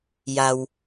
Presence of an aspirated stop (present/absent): absent